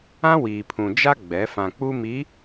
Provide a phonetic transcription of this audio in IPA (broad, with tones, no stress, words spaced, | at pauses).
ã˦wiː˨pʰũ˨ d͡ʒa˦ ɡ͡bɛ˨˦ fã˨ k͡pu˦mi˨˦